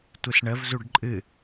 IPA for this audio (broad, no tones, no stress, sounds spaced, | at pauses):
tʷ ɨ s ɳ ə v z u ɖ ǃʼ ɨ